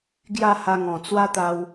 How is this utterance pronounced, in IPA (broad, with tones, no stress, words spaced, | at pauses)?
ɡja˥˧ha˧ŋɔ̃˨˩ t͡swa˦t̪a˧w